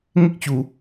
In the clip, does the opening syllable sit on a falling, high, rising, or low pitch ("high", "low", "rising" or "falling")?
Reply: high